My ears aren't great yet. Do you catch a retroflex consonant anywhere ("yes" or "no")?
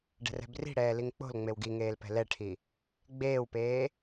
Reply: yes